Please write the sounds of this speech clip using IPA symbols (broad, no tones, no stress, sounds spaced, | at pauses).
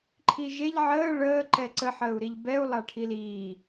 ǃʰ i ʒ e ʎ ʕ əː ɭ əː ǃ ɛ ǀ ə ħ əː u̯ ɾ i ʎ b ɛ u̯ lˠ a ʈʰ i l iː